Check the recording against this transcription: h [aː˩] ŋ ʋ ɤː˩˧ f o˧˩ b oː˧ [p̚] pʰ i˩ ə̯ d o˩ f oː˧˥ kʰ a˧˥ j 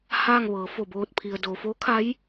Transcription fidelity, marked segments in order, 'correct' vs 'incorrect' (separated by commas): incorrect, incorrect